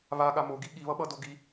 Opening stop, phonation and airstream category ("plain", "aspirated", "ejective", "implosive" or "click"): implosive